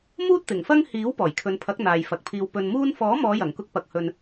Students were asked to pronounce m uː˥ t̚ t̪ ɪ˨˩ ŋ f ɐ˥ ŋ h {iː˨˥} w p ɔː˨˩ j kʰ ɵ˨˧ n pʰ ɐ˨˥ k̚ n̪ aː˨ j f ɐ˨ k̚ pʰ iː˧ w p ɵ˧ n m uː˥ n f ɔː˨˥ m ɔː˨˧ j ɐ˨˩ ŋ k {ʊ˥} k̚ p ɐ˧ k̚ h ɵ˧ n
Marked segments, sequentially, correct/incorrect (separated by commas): correct, correct